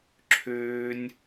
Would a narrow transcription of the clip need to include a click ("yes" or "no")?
yes